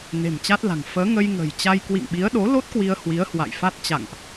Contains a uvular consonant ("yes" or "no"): no